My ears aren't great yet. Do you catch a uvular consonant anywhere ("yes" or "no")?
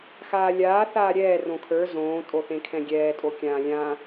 no